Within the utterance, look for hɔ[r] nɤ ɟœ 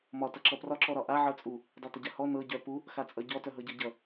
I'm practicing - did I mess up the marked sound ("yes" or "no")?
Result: yes